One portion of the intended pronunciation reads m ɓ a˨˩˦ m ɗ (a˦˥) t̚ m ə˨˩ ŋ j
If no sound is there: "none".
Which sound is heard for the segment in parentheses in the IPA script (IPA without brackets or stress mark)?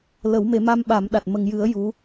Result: a˨˩